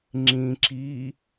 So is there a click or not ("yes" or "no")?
yes